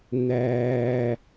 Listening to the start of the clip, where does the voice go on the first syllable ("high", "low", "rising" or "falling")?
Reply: high